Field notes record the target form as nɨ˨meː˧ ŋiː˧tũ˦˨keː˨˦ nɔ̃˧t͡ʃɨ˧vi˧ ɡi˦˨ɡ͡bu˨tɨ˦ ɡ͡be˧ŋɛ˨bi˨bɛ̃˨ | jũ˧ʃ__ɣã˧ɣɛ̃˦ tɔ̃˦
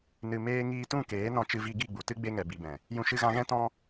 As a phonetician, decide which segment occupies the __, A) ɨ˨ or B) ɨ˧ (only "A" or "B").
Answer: B